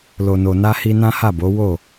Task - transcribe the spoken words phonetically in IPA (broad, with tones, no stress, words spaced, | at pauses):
lo˨no˨na˧hi˧ nã˦ha˦˨bo˨˦ wo˦˨